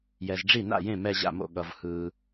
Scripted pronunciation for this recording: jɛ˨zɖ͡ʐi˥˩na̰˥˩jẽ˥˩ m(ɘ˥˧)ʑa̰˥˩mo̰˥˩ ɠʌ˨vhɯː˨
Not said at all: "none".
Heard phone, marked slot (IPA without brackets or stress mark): ɛ˥˧